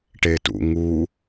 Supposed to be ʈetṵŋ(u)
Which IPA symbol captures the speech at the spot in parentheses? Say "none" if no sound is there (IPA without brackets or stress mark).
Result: u